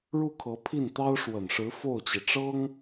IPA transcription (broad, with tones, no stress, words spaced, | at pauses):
ɻu˥˩kʰɤ˧˥pʰi˥˩n t̪ɑ˥ʊ̯ʂwə˨˩nʂɻ̩˧˥ fo˥˩ʊ̯t͡ɕi˩ʈ͡ʂɤ˥ŋ